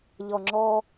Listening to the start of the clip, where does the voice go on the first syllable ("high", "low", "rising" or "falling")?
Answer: low